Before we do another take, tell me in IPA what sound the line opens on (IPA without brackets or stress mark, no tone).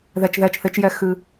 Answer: ð